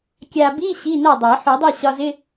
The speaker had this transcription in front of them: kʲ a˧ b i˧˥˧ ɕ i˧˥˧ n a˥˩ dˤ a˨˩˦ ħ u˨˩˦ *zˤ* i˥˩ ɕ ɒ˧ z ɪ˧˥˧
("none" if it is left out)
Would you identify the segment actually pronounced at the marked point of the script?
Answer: dˤ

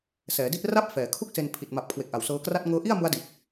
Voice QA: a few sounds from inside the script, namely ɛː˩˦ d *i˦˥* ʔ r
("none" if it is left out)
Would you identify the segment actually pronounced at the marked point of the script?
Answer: i˥˩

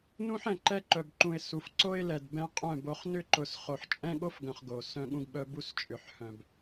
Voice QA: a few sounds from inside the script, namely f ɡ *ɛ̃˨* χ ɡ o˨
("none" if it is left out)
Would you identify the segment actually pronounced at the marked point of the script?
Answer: œ̃˨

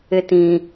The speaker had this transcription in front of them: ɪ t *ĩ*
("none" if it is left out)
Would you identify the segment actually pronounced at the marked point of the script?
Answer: ĩ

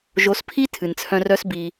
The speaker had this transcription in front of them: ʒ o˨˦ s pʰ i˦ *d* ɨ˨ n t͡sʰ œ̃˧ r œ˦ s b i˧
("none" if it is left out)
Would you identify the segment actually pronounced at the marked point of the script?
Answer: tʰ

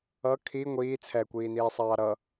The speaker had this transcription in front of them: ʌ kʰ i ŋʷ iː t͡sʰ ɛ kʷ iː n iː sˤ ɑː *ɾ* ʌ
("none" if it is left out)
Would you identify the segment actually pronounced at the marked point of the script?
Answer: ɾ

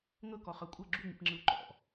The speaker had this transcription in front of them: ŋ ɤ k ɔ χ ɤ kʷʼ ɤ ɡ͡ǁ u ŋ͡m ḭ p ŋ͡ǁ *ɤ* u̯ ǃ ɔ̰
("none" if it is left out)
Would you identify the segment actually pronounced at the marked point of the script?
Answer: ɯ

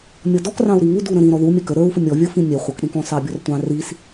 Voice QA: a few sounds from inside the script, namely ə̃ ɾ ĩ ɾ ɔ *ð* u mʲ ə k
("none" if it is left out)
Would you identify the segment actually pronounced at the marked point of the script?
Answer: ð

